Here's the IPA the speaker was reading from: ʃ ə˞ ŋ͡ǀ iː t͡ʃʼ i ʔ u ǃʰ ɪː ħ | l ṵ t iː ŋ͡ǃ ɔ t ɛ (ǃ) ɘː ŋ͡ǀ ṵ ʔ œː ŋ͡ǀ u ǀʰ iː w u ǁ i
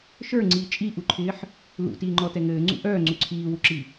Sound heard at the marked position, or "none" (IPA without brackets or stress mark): ŋ